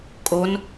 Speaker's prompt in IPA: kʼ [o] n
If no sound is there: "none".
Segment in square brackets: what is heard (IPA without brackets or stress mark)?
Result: o